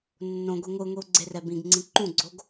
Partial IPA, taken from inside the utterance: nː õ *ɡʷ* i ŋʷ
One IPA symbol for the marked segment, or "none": ɡʷ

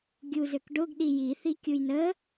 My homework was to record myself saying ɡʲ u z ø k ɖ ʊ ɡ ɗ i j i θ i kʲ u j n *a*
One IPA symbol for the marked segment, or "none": ə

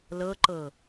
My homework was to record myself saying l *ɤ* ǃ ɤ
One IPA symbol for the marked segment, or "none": ɤ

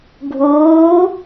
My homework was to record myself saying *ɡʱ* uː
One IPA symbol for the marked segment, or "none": ɡʱ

